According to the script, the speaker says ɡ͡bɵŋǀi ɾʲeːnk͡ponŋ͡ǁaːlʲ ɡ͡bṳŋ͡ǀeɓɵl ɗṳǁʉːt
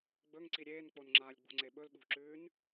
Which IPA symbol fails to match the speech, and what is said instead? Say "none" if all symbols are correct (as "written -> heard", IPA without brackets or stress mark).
t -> n